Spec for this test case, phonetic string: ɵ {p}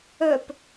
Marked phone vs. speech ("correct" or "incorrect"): correct